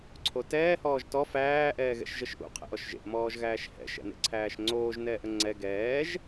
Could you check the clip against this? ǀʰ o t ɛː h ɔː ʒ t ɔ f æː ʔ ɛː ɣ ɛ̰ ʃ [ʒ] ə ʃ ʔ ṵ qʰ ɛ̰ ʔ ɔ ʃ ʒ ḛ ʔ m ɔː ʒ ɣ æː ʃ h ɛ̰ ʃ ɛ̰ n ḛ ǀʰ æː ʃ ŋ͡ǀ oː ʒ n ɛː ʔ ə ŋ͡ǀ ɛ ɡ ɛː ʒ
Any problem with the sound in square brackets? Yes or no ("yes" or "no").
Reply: no